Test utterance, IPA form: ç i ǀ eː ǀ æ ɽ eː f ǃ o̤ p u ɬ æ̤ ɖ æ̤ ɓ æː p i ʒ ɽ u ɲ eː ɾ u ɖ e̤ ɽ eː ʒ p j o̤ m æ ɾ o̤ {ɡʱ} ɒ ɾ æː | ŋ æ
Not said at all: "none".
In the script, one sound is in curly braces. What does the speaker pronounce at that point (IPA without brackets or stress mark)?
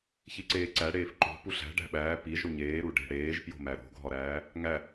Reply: ɡʱ